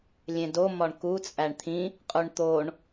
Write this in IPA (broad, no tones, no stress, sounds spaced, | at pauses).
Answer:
lʲ ẽ d o m ɒ ɳ k u t͡sʼ æ ɳ t̪ʰ ĩ | qʼ u ɳ t̪ o ɳ